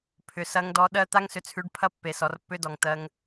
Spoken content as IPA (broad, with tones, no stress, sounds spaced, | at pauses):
pʰ ʏ˨ s ɐ˦ ŋ d ɔ˦ ɗ ɜ˦ t̪ a˦ ŋ s ʏ˨ t͡sʰ ʉ˨˦ ɖ pʰ ɐ˦ pː e˨ s ɔ˨ r pː ʏ˦ d ɔ˨ ŋ t̪ ɜ˦ ŋ